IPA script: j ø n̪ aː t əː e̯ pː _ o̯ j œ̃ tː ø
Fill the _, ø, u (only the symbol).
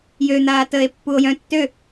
u